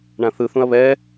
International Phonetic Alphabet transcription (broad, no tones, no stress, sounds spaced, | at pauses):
ɳ ã θ ɯ θ ũ ɐ̯ β ɛ